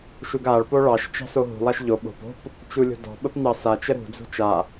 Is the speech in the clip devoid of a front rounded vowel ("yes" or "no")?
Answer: yes